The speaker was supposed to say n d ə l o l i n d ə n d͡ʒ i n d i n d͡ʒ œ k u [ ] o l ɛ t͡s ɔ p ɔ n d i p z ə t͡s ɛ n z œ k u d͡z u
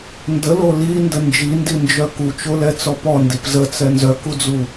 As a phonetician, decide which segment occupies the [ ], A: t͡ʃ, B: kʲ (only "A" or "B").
A